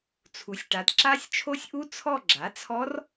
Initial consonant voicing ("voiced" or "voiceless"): voiceless